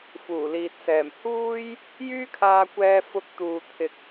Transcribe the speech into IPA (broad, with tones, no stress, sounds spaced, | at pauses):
f uː˨˩ l iː˨ t̚ s ɛː˨˩ m h uː˥ j | j yː˥ kʰ aː˧ kʷ ɛː˧ f ʊ˧ k̚ t̪ uː˨ t̪ʰ ɪ˨ k̚